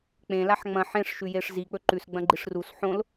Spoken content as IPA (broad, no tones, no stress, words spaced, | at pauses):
k͡pẽlaħ ŋ͡mɐ̃ ħẽʂʃʉjeʂ zik͡pɵ ǃʉsɡ͡bɐ̃ɡ͡ǃiʂ rus ħõl